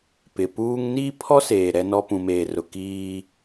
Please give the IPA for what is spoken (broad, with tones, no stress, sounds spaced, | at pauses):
p ɪ˨ p uː˦ ŋ n iː˦ pʰ ɔ˦ s eː˨ ɾ ɛ˦ n ɔ˦ p ũ˨ m eː˨ r ʊ˨ k iː˦